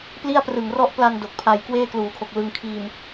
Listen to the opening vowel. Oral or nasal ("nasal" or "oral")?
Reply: oral